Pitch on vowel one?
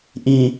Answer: low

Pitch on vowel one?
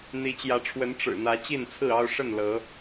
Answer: rising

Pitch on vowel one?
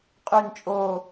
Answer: falling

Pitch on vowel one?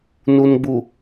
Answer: low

